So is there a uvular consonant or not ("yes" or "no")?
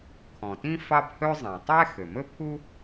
no